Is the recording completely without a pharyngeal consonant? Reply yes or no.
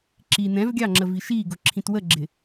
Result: yes